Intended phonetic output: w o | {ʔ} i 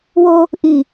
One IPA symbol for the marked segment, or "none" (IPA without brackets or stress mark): ʔ